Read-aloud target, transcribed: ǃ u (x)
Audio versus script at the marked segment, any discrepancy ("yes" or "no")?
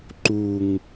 yes